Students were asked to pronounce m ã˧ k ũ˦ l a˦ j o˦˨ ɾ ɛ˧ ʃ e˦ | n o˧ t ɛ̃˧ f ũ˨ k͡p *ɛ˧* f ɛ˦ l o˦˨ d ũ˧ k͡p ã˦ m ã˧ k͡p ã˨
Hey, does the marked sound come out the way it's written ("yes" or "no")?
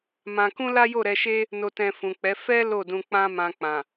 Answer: no